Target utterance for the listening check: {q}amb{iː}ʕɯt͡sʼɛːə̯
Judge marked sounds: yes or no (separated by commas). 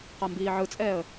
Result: yes, yes